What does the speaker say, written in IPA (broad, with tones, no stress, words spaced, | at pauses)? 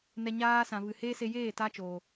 nɛ˧ɲaː˦ sã˨vɨ˨heː˦ se˧jeː˦˨ ta˦t͡ʃoː˨